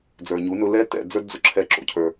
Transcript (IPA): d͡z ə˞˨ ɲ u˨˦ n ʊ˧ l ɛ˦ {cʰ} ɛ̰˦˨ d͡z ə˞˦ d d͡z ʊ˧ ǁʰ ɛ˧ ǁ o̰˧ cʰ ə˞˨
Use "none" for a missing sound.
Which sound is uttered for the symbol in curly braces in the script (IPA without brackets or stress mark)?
t